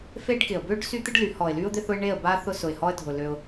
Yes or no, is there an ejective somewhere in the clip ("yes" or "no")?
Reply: no